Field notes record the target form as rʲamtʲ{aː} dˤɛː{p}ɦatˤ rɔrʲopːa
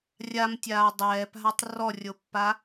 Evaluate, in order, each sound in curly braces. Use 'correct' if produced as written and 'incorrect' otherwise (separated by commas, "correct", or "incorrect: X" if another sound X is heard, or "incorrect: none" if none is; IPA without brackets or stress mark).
correct, correct